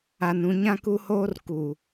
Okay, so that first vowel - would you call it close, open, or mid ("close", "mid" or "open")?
open